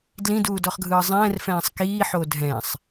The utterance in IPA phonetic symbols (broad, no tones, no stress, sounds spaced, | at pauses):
d l ĩ d uː d ɔ χ ɡʱ ɯː zˤ ɛ̃ː r f ɛ̃ː sˤ k iː ħ o dʱ ɛ̃ sˤ